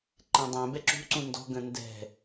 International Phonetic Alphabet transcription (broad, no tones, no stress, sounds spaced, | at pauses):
ǃ ẽ dˤ ɛ̃ b ɛ ǁ ṳ ǀ ũ n d ɔ̤ ɡ ə̃ n d ɛ̤